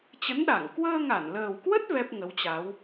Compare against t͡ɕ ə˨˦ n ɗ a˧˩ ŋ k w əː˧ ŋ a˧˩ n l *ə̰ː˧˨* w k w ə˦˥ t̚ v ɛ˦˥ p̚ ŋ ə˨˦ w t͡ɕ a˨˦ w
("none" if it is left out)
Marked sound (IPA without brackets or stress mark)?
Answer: əː˨˩